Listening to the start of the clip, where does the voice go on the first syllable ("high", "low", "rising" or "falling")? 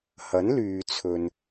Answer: rising